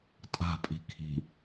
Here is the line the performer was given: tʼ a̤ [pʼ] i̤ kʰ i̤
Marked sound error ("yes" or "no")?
no